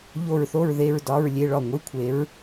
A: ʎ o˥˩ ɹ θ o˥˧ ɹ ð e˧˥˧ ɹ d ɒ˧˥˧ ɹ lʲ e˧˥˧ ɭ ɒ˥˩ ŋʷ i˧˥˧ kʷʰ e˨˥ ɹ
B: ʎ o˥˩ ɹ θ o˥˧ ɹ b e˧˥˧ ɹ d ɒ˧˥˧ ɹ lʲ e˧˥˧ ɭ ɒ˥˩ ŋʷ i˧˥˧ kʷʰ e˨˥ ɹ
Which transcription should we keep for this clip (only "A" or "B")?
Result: A